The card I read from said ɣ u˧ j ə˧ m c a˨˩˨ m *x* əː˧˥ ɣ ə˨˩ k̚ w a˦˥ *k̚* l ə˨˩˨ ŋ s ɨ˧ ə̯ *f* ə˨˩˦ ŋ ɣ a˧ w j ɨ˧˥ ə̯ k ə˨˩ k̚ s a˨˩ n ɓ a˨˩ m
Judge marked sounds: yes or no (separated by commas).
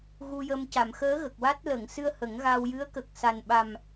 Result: yes, no, no